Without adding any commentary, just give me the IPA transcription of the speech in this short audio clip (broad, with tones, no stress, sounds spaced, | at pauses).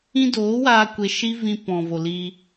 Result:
ĩ˦ d oː˨˦ w aː˧ kʷ e˧ ʃ i˦ v ĩ˧ p ɔ̃˨ v o˨ l iː˧